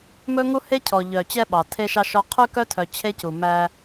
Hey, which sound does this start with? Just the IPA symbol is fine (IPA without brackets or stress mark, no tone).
m